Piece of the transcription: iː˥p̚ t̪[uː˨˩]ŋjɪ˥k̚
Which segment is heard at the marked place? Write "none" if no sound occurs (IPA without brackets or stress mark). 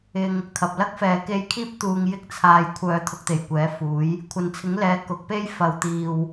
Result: uː˧